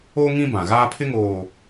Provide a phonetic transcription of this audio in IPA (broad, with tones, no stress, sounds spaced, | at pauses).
o˦ ŋ ĩ˦ b ã˨ ɣ aː˦ pʰ ɪ˦ ŋ oː˨